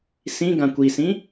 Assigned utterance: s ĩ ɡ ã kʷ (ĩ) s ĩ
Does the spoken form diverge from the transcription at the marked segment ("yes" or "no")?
yes